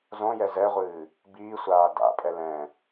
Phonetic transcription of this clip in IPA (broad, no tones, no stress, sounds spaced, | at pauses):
z õ j ɛ z ɛ ʁʷ ɨː | b iː sʷ aː d a̰ pʼ ɛ l ɛ̃